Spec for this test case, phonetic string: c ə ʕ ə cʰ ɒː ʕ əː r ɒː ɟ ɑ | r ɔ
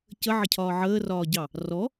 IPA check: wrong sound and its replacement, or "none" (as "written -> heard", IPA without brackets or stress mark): none